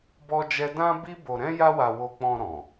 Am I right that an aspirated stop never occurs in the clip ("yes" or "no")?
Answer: yes